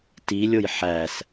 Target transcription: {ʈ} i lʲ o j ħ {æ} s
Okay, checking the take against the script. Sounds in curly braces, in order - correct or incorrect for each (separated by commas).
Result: incorrect, correct